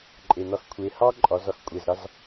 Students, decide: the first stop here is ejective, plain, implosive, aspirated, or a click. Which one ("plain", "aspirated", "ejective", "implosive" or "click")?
click